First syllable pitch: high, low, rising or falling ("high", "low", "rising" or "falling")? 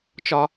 high